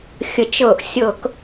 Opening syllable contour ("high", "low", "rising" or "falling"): rising